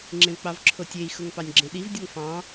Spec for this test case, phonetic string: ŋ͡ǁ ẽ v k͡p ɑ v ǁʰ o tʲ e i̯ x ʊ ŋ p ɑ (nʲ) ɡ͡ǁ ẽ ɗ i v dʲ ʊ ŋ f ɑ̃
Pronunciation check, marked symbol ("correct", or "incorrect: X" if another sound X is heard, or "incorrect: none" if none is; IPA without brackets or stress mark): correct